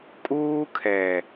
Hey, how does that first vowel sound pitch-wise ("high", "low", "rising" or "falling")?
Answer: high